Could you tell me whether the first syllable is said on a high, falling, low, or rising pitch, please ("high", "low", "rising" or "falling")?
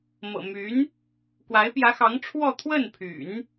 low